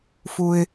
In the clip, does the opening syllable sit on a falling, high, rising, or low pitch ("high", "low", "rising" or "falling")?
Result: low